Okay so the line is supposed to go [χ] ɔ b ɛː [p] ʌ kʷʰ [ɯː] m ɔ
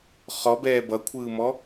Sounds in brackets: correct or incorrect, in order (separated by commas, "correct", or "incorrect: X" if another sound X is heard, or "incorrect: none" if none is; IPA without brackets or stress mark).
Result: correct, incorrect: b, correct